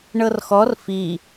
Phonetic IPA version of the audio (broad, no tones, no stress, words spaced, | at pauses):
ɳɤrxɔr fi